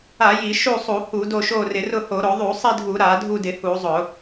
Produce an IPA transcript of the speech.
a˧˩˧ j i˧˩˧ ʃ u˦˨ sˤ u˧˩˧ h u˧˩˧ d o˦˨ ʃ o˦˨ r ɪ˧˩˧ r ʊ˦˨ h o˧˩˧ ɾ o˧˩˧ ðˤ u˧˩˧ sˤ i˦˨ dʱ u˧˩˧ ɾ a˧˩˧ dʱ u˦˨ d ɪ˧˩˧ h u˧˩˧ zˤ ʊ˧˩˧

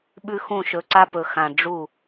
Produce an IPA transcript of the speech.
ɓ ʉ˦ x ũ˦˨ ʃ ɵ˧ ǀ a˧ p ɵ˨ x ã˨ ɖ͡ʐ u˦˨

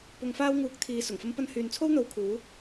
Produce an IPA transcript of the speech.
p ʊ˧ ŋ f aː˥ w ŋ uː˧ k̚ t̪ʰ iː˧ s ʊ˨˩ ŋ f ɐ˧ m p ɐ˧ n h yː˨ n t͡sʰ o˥ w n̪ o˧ w kʰ uː˨˥

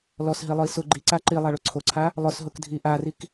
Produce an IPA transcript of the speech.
l ɔ s ɦ i lˠ ʊ i̯ s ʊ ɡ͡ǃ i ǀ a ǃ i lˠ a ɭ o ǀʰ o ǀʰ a | lˠ ʊ s ɦ ʊ k dʱ i ʔ a r i k

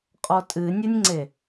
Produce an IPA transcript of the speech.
qʼ ɔ tʼ ɨ nʲ ɘ nʲ ŋ͡ǀ e

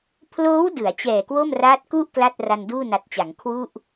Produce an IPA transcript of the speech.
pʰ l oː˦˥ w d ɯ˩˦ a̯ t͡ɕ ɛː˨˩ k w o˥˩ m r aː˦˥ t̚ k u˥˩ ʔ k l a˥˩ t̚ r a˧ n d uː˥˩ n a˨˩ t̚ t͡ɕ a˩˦ ŋ kʰ w u˥˩ ʔ

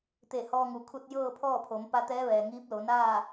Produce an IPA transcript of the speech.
t̪ e˧˩ h ɔː˧ ŋ u˩˧ kʰ u˧ t̚ j ɤː˥˨ pʰ ɔː˥˨ pʰ o˩˧ m p a˧ t̪ ɛː˧˥ ʋ ɛː˩ ŋ iː˧˥ p̚ l o˩˧ n aː˥˨

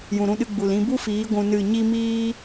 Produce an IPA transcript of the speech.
j ũ˨ ɾ ũ˧ ɗ ɨ˧ ɡ͡b u˨ l ĩ˧ b u˦ f iː˨˦ ɡʷ ũ˧ n ɨ˦˨ ɲ i˦ m iː˦

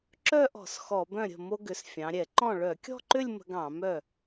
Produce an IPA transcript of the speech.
ǁ œ˥˧ ʔ ɔ̤˧˩˧ s x ɔ˧˩˧ b œ̃˥˩ ɾʲ ə̤˥˩ m o˧ ɡ ʏ˩˧ s fʲ ɑ̃˩˧ ɾʲ ɛ˧˩˧ ǃ ɔ̃˥˩ ɭ œ˧˩˧ kʲ ɔ̤˥˧ ǃ ʏ˥˧ lʲ m ə̤˧ ɡ ɑ̃˧˩˧ m œ˥˩

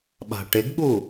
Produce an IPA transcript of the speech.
ɓ a̤ ʈ ɪ ɡ ɠ u

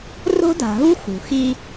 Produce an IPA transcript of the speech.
r o̤˦ d a̤˨ ɦ u˦ x ṳ˨ x i˦

